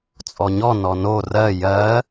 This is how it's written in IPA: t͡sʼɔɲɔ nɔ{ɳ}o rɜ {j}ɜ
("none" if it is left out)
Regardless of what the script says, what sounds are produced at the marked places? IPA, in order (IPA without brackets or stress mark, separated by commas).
n, j